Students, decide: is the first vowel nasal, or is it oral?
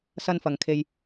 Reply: oral